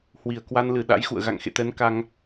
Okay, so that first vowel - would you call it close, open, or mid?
close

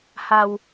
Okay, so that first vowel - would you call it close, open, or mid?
open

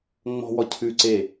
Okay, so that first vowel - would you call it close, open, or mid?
mid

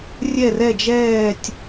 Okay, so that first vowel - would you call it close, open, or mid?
mid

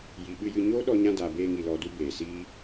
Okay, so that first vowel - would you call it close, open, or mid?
close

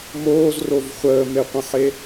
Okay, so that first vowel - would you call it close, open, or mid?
mid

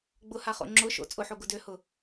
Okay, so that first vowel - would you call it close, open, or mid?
close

